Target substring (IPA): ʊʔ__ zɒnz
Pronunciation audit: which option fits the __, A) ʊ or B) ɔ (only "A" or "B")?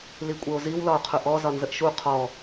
B